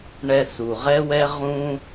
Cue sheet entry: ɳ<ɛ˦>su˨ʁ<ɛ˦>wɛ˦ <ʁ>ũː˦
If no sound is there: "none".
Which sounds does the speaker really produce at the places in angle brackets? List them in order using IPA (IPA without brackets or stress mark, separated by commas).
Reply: ɛ˧, ɛ˦, ʁ